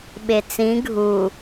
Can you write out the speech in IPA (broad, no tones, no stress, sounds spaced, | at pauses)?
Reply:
ɓ e t͡s ĩ ɡʱ u